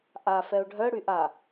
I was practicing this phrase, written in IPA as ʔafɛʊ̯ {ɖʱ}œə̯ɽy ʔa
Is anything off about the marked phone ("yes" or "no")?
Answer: no